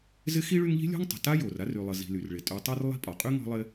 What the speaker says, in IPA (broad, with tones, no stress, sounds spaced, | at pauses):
z ɪ˥ x i˦ ɭ y˦ ŋ ʎ i̤˥ lʲ ɔ̤˥ ŋ tˤ ə̤˩ t a˥ j o˩ r a˥ r y˨ lˠ ə˨ z i̤˨ l y˩ r ɭ ɪ˩ tʼ y˨ tˤ e˦ r lˠ i̤˦ pʼ ɒ˩ qʼ y˥ ŋ ɔ̤˦ lˠ ɪ˦